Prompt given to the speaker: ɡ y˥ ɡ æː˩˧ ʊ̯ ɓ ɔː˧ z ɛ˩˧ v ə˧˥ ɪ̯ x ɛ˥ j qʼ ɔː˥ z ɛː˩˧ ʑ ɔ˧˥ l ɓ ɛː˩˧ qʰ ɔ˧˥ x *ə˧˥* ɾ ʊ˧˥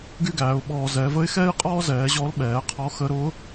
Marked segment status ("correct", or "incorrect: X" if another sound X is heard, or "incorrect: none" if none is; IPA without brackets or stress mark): correct